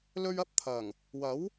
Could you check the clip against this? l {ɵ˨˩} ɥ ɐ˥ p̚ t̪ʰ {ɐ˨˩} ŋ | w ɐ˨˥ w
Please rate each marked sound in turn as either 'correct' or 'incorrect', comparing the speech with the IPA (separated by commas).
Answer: incorrect, correct